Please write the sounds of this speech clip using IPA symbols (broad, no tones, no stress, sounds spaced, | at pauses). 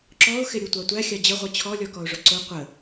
ǁ ɔ ʊ̯ x ɪ ɾʲ u tʷ ɑ tʷ æ xʲ ɑ d͡ʑ ə ʁʷ ʌ t͡ɕʰ ɔ lʲ ɔ k ɔ ʊ̯ ʐ ʊ ǀ ʊ qʷ ə